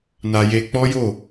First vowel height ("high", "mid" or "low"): low